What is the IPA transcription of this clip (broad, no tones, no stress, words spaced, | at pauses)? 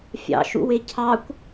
fʲɑ̰ʃṵwe cʰɑkʷ